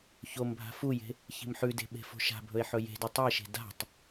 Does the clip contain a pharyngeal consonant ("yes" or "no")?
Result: yes